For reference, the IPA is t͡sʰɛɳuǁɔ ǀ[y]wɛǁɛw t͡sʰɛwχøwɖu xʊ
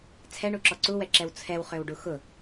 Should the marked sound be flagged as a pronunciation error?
yes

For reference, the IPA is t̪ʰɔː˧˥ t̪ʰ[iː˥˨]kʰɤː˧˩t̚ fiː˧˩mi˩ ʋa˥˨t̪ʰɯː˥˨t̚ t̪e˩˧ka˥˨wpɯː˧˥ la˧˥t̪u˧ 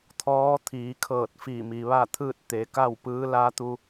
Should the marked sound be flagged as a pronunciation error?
yes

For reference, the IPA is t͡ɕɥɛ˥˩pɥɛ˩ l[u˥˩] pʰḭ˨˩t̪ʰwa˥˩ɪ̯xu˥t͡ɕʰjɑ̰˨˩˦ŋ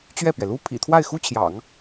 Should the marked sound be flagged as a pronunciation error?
yes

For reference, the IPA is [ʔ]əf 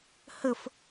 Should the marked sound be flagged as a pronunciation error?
yes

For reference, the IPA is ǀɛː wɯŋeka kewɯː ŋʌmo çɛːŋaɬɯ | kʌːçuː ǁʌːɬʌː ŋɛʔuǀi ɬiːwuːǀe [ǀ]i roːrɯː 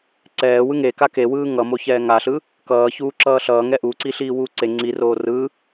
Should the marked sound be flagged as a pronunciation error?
yes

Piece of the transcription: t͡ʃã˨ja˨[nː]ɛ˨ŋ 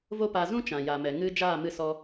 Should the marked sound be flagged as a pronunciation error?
yes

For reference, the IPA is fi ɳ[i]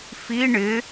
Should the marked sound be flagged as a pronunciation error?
yes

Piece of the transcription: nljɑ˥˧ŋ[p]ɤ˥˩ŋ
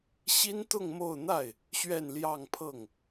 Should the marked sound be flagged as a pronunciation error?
yes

